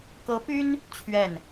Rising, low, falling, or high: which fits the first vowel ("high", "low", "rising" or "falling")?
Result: rising